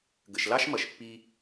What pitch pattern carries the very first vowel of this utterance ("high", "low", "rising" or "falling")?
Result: low